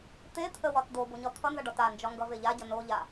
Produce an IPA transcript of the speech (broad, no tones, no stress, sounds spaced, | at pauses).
t̪ e t̪ʰ ə w ɒ t d̪ o b o ɲ ɒ t̪ʰ ʌ n z ʌ ɖ ɒ t a n d͡ʒ ɒ ŋ ɡ ʌ v e ʎ a ɟ ʌ n o ʎ a